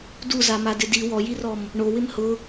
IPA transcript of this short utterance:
duzamadɪ di wɔjirɔm | ɳowɪm hʊ

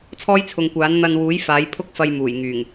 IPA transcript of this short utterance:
t͡sʰɔː˥jt͡sʰʊ˨˧ŋkʷaː˨˥n n̪ɐ˧nwuː˨˥j faː˨˥j pʰʊ˥k̚fɐ˧j muː˨˩jŋyː˨˩ŋ

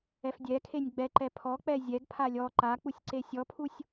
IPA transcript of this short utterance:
ɛfdʲɛkʰenʲ ɡ͡bɛǃɛ pʰɔk͡pɛ zʲɛɡpʰa lʲɔ ǃak͡pusʲ ǀesʲɔpʰusʲ

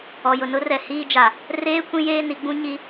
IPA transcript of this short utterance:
ɔ˨jʊ˨ nʊ˦rɛ˨hiː˦d͡ʒa˨ | reː˦ kʷĩ˦jeː˦ ni˨˦ɡ͡bũ˦ ɲi˦

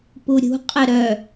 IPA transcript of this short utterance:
puɾʲṳ qʼəɾœ

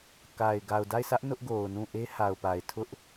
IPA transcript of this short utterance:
ka˨ɪ̯ ɡa˨ʊ̯da˦˨ɪ̯sä˦ʔ nʊ˦ʔɡo˨ʊ̯nũ˦˨ʔe˦ ha˨ʊ̯pa˨ɪ̯ tʰʊ˦ʔ

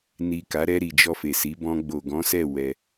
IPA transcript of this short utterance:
ni˨ka˨˦ɾɛ˧ɾi˨ d͡ʒɔ˧fe˨si˨˦ bɔ̃˧ɡ͡bo˨ ɡɔ̃˨˦sɛ˦˨ wɛ˧

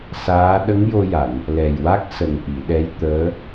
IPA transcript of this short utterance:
saː˧˥ ɗə˧˥ŋjo˧ja˨˩˨n | lɛ˨˩jwa˦˥k̚sə˨˩ŋ ʔi˨˩˨ɗɛ˧˥jt̪əː˧˥

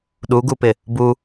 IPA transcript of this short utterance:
ɗuɡupɪ | bu

